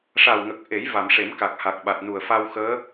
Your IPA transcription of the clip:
ʂ a˨˩ w ŋ ə˨˩ k̚ ʔ e˨˩˦ j v a˨˩˨ m ʂ e˨˩˦ m k a˨˩ k̚ h a˨˩ k̚ ɓ a˨˩ t̚ n u˨˩ ə̯ f a˧ w x əː˧˥

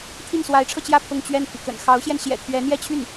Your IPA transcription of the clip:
t̪ʰ i˥˩ n s w a˧˥ ɪ̯ ʈ͡ʂʰ ɤ˧ t͡ɕ j ä˥˧ pʰ ʊ˥˧ ŋ t͡ɕ ɥ ɛ˥˩ n pʰ i˩ k ə̰˨˩ n x ɑ˧˥ ʊ̯ ɕ j ɛ˧ n ɕ j ɛ̰˨˩ t̪ʰ ɥ ɛ˧˥ n̪ j ɛ˥˧ t͡ɕʰ y˥˩ n

